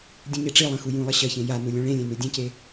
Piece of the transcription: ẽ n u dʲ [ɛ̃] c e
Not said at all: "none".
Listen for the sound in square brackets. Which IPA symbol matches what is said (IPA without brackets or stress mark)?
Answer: ẽ